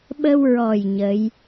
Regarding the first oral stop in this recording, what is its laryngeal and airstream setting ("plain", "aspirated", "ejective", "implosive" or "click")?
implosive